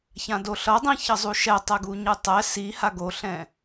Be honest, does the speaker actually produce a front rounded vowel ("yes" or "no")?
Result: no